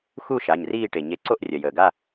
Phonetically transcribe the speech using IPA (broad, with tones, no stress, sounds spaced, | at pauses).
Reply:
x u˥˧ ʃ a˩˧˩ ɲ r iː˥˧ ʈ e˩ ɲ e˧˩ ǀ o˥˧ ʔ rʲ ɐ˩ j əː˩ ɡ a˥˧